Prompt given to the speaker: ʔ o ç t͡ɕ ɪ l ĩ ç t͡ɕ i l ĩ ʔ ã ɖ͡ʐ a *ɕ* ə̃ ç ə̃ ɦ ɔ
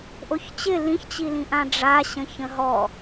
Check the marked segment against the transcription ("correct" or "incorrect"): correct